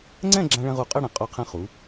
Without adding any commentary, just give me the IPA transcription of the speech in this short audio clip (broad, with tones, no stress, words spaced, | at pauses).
ŋ͡ǀɛ̃˥˧ ɡ͡ǁã˧ ɭɛ̃˧ʁu˧˩qʼe˥˧ɽɛ̃˩˧ qʼo˧˩qʰɛ̃˧ χu˩˧